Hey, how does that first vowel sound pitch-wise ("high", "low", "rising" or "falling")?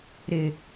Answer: low